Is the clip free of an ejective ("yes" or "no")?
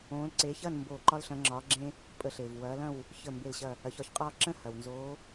no